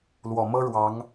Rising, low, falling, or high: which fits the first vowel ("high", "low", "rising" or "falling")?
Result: low